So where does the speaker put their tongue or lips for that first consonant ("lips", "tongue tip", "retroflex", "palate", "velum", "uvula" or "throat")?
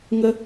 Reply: velum